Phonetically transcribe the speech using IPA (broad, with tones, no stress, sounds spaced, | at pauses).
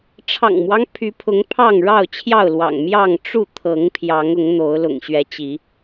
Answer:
ʈ͡ʂʰ ɑ̰˨˩ ŋ m w ɑ˦ ŋ pʰ y˨˦ pʰ ʊ˨˦ ŋ pʰ ɑ˥˨ ŋ ɻ ɑ˥˨ ʊ̯ t͡ɕʰ j ɑ˥˨ ʊ̯ l w ɑ̰˨˩ ŋ m j ɑ˥˨ ŋ ʈ͡ʂ u˥˨ t̪ʰ ɤ˨˦ ŋ pʰ j ɑ˨˦ ŋ ʊ˨˦ ŋ n̪ o˨˦ ʊ̯ l ʊ̰˨˩ ŋ ɕ ɥ ɛ˨˦ t͡ɕ i˨˦